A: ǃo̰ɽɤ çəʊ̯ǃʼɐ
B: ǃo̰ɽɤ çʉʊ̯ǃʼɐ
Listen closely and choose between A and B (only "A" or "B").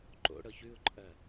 B